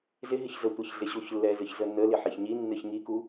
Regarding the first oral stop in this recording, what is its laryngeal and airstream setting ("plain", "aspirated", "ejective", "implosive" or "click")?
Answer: plain